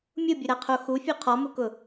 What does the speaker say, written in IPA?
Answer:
mʲʊbʲʊɾaqʰo xufʲu qʰɔmukʊ

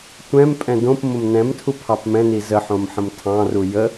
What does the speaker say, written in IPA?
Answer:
tʷɛ̃m pʼɛ̃dõpmʊm nɛ̃mtʰu pʰɑpmɛ̃ni zəħõm ħə̃mtʰɑ̃ru jə

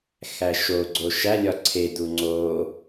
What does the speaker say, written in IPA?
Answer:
xæʃoɡ͡ǀo ʃælʲɒ ǀʰedu ŋ͡ǀo

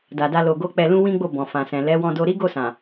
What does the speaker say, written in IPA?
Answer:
da˨da˧ lo˨ɡo˨˦ k͡pɛ˧lũ˦wĩ˦ɡ͡bo˦˨ bɔ̃˨fã˨sɛ̃˨ lɛ˨˦wɔ̃˧ do˧ɾi˦ɡo˦˨sã˨

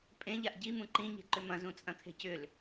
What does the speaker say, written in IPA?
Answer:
pʼẽʎaʔ ɟi mũǃĩ ɲe̤ǃʏmɐ̃zũ t͡sʼɐ̃t̪ʰe̤cʏl

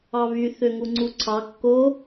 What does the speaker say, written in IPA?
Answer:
ɑβy θøŋuŋ͡ǀuǀʰɑ kːo

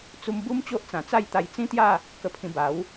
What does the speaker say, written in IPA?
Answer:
t͡su˧mbu˦m t͡ɕo˦ʔt͡sã˨˩t͡sa˥˧jt̪a˧j t͡sĩ˦t̪ja˥˧ | kə˧pʰĩ˧ba˨˦w

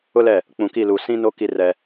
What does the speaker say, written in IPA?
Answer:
ʊ˦lɛ˦˨ | k͡pũ˨ki˦˨lu˨ sĩ˦ no˦ ki˦rɛ˦

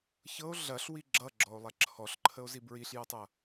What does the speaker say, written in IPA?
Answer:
çɤo̯ ɮɐɬwi ɡ͡ǁʌɡ͡ǁɔo̯lˠɛ ǁʰɔɬǃʰəo̯zi bɹiɬjɤtˤʌ

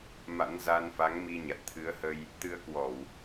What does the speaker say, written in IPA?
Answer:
ma̰˧˥nza˧nfa˨˦ŋmi˧ ɲa˨˩t̚t̪ʰɨ˨˦ə̯hə˧j | t̪ɨ˧ə̯kwɔ˧˩˨w

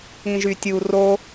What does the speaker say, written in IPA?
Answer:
ĩʒytʲu ro

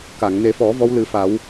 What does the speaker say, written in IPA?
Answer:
ka˨˩˨ŋne˨˩˦fɔ˨˩˦ vɔ˧˥wlɨ˨˩˦fa˨˩˦w

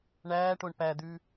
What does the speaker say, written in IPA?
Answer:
ɳæːʈoɳ pæd̪ʉ

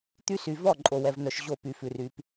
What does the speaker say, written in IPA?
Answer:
t̪y˦sy˨ vɔ˦˨ǃʼo˨wɛ˨vn̪œ˨ʃ ʑo˦˨ py˨fʉ˨ry˨˦p

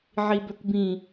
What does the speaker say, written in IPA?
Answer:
ʕibœkbĩ

